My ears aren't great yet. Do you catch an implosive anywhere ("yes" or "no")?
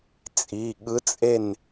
yes